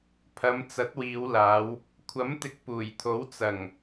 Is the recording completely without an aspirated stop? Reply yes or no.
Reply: no